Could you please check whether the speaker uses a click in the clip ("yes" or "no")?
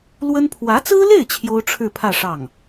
no